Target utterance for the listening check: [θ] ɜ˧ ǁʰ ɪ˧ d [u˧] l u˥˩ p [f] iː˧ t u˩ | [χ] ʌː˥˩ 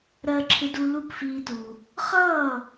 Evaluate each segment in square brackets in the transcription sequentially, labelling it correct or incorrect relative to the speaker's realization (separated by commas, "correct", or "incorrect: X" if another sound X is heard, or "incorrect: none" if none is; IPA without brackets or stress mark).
incorrect: ɾ, correct, correct, correct